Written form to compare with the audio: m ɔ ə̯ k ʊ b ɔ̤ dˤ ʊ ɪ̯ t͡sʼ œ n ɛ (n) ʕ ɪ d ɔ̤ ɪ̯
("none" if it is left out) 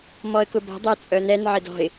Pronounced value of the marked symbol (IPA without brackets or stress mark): n